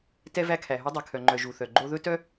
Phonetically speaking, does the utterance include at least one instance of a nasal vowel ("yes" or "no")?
no